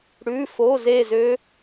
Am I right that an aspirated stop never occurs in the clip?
yes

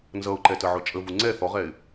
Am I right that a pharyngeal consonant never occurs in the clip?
no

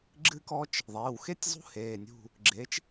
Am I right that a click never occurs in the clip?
no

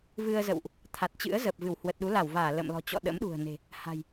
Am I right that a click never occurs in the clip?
yes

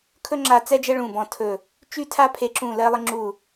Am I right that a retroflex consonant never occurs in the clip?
no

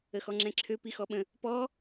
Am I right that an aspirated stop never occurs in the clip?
no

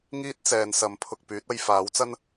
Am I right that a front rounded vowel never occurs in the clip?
no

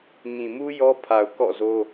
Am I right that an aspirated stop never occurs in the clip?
no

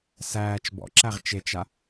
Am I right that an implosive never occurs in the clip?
yes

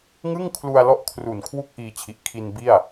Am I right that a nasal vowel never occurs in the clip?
yes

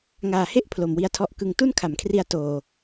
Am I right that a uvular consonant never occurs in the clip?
yes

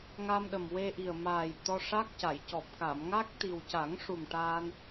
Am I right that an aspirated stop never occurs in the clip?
yes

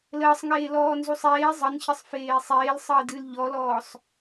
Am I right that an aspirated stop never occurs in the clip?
yes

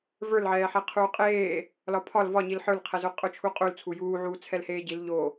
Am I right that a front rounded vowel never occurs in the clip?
yes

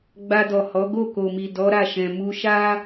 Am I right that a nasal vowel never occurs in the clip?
no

